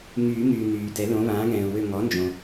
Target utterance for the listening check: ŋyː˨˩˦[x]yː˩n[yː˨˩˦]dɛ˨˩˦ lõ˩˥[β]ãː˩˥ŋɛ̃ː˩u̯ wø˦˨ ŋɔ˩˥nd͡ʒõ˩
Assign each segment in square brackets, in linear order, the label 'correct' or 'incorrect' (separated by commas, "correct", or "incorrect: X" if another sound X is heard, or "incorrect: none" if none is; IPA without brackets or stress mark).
incorrect: ŋ, incorrect: yː˩, correct